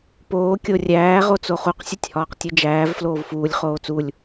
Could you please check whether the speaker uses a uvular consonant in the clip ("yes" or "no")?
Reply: yes